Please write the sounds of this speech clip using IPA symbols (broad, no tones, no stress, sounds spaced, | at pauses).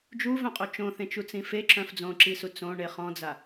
d͡ʒ u v œ̃ qʼ o t͡ʃ õ θ ẽ t͡ʃ u t͡s ĩ f e ǁ œ̃ f d͡z õ ǁ i s u t͡s õ ɳ e χ ɔ̃ d͡z a